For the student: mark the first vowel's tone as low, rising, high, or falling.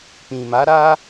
low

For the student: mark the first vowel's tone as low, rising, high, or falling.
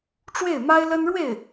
falling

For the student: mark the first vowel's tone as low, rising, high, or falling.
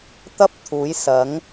high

